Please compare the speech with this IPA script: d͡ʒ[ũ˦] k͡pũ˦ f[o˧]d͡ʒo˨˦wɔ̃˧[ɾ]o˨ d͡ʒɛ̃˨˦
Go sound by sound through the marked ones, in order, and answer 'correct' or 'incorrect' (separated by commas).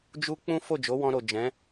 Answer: incorrect, incorrect, correct